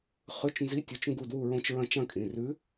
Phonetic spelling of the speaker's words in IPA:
χ ʉ˧˥˧ t͡ʃ n z i˧˥˧ tʲ ɵ˧˥ t͡ʃ ŋ ɡ u˦˨ d w u˦˨ ɹ õ˦˨ t͡ʃ ɹ ɐ̃˦˨ t͡ʃ ɐ̃˦˨ kʼ ĩ˩˧˩ r ʉ˧˥

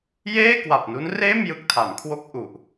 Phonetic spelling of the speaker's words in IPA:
j eː˥˩ k w a˨˩ p̚ n u˦˥ n r eː˥˩ m j ɯ˦˥ k̚ tʰ a˩˦ m kʰ w o˥˩ k̚ ʔ u˨˩ ʔ

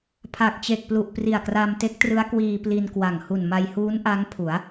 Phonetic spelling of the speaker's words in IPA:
pʰ a˨˩ k̚ t͡ɕ e˨˩ k̚ p l u˨˩ ʔ p r i˨˩ a̯ k r a˧ m t e˦˥ k̚ t r ɯ˦˥ a̯ k w iː˧ p l i˧ n k w a˨˩ ŋ h u˨˩ n m a˧ j h uː˦˥ n ʔ a˦˥ ŋ pʰ u˩˦ a̯

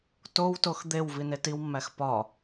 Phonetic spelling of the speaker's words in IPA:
t o w t o x d̪ e w v i n e t i w mː æ x p ɒ

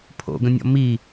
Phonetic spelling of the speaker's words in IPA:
pʰ o̰ ɡ ə̃ nʲ ɔ̰ m i

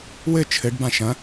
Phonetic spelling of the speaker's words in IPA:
w ɘ t͡ʃʰ ɘ ɖ b ã ʃ ɐ̃

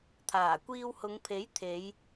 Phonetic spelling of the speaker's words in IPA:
t̪ʰ aː˨˩ kʷ iː˧ w h ʊ˨˧ ŋ pʰ e˨˥ j t̪ʰ e˨˧ j

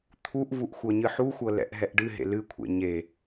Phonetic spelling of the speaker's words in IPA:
t̪ʰ u ʔ v u ʔ xʷ ɤ ɲ ɨ ħ u xʷ ɤ l ɛ̰ ʔ ɦ ɛ ʔ ɖ ɨ ɦ ḛ l ɨ kʷʰ ḛ ɲ e

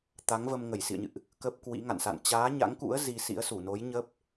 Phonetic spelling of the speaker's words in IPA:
t̪ a˨˦ ŋ v ə˧ m ŋ ə˧˩ j s ḭ˧˨ ə̯ ɲ ɨ̰˧˨ ʔ | k ə˦˥ p̚ k w ḭ˧˥ ŋ a̰˧˨ n s a̰˧˨ n t͡ɕ aː˨˦ ɲ a̰˧˥ ŋ k ṵ˧˥ ə̯ z i˧ s ḭ˧˥ ə̯ s u˧˩ n o˨˦ j ɲ ə˦˥ p̚

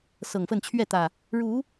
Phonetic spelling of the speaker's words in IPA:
s ɤ˨˩ ŋ f ə˥˨ n t͡ɕʰ ɥ ɛ˥˨ t̪ ä˨˩ | ɻ u˨˦

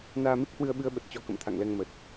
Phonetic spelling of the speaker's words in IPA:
n aː˧ m i˦˥ k̚ h w ɨ˧ ə̯ ɓ ɨ˧ ə̯ ɓ ə˨˩ t̚ t͡ɕ ɔ˧ k ə̰˧˨ m t̪ʰ a̰˧˨ ŋ l ɛ˧ ŋ m ə˨˩ t̚

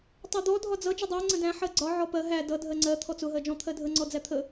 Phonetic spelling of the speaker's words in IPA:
tˤ ɜ d̪ ɔ dʱ ɒ d͡z ʌ d͡ʒ ə dˤ æ ŋ͡ǀ ə̃ d æ̃ ħ ɜ ɡ͡ǀ ɒ ʕ ɔ p ɜ ɦ æ d ʌ dʱ ɜ ŋ͡ǀ ɜ t̪ʰ ɔ t͡s ʊ ɦ ɜ d͡ʒ ɔ̃ t̪ʰ ɜ dʱ ə ŋ͡ǀ ɔ d͡z æ t̪ʰ ə

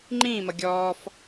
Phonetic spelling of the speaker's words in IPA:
ŋ͡ǃ ĩː m ʌ ɡʲ ɔː f

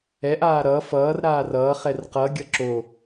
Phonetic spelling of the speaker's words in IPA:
ɛ ʔ aː ɾ ʌ f ʌː r ɾ aː r ʌː χ ɛ r q ʌ ɡʲ ʌ ǁ o

